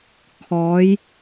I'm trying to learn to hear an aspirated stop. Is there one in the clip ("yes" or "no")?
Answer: yes